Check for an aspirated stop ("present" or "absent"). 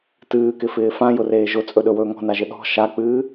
absent